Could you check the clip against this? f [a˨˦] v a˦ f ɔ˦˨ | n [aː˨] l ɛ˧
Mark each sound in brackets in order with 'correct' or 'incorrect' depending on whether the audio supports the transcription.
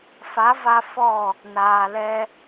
correct, correct

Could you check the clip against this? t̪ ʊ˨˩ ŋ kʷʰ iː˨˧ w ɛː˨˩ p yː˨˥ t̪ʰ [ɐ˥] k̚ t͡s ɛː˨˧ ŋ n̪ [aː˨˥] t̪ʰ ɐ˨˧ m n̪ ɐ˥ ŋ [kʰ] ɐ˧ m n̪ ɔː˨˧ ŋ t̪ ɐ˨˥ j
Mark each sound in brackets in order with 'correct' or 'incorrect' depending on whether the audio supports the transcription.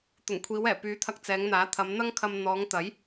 incorrect, correct, correct

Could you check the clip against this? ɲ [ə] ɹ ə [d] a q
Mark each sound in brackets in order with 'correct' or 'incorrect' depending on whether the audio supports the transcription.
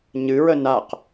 incorrect, incorrect

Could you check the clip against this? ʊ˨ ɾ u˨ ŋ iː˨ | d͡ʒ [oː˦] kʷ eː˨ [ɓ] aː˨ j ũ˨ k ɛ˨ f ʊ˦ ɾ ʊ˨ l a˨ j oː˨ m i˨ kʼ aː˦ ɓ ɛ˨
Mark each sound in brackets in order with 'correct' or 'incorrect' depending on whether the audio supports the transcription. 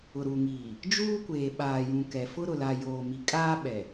incorrect, correct

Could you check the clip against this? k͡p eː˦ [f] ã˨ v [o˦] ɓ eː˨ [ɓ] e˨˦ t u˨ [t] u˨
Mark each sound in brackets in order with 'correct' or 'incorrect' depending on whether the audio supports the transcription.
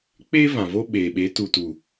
incorrect, correct, correct, correct

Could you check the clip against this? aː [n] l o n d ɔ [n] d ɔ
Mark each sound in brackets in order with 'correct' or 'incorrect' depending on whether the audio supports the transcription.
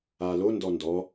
incorrect, correct

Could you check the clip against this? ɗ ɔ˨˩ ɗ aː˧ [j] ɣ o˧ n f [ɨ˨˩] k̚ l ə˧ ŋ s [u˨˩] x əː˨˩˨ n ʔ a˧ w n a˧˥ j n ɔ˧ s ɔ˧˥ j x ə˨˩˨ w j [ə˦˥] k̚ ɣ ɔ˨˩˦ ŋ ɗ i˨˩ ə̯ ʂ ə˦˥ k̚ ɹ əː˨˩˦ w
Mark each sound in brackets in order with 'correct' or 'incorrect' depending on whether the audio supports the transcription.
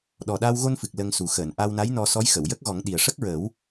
incorrect, correct, correct, correct

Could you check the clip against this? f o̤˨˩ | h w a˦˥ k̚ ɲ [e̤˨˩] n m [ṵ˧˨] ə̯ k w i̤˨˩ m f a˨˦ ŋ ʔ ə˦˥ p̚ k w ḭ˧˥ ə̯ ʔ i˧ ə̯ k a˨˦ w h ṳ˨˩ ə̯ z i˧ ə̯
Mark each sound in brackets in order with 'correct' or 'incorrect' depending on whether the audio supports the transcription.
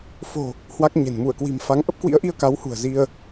correct, incorrect

